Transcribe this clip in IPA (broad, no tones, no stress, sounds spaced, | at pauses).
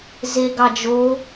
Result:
z e ɡ ɑ d͡ʒ o